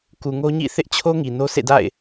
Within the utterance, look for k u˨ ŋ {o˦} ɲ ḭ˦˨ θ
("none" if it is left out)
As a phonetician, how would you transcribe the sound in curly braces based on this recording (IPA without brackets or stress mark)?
o˦